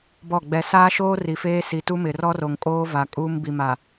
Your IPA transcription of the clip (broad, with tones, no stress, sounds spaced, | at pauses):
b ɔ˦˨ ɡ͡b ɛ˨ s aː˦ ʃ oː˦ r i˨ f eː˦ s i˨ t u˦ m ɪ˨ r ɔ˦ r o˨ ŋ kʼ oː˦ v a˨ kʼ uː˦ m b i˨ m a˨